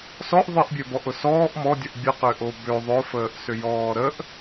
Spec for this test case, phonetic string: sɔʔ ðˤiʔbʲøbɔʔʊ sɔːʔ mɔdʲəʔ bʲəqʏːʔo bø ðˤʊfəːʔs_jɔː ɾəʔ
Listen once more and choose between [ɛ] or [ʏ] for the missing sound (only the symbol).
ʏ